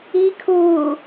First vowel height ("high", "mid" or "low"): high